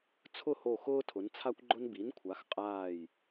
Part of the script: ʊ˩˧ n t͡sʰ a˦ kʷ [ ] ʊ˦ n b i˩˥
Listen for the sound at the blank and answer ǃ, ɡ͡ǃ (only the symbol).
ɡ͡ǃ